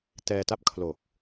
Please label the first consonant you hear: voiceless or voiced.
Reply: voiceless